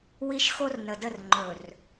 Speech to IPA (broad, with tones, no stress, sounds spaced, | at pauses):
w i˦ ʃ x o˦ r n ə˨ d ə˦˨ r ŋ͡ǃ ɵ˨ r